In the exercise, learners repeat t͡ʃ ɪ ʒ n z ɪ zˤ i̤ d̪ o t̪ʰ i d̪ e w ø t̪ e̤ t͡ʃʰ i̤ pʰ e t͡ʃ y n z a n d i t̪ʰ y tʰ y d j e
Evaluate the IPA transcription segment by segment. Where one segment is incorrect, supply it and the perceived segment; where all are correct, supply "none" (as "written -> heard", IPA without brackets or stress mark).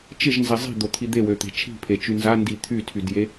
none